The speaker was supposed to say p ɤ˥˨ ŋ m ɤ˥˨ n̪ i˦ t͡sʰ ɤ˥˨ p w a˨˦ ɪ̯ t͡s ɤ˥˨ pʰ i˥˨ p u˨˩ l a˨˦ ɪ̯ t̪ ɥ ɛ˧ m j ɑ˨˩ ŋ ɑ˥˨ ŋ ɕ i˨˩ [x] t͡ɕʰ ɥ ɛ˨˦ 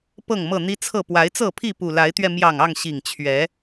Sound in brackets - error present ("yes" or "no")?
yes